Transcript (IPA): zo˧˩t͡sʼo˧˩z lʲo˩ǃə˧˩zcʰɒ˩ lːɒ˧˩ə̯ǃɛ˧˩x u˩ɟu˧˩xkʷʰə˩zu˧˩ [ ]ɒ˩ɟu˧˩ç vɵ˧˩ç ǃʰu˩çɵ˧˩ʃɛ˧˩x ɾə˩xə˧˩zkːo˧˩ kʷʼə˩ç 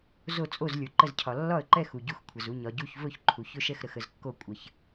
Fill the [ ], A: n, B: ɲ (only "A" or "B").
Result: B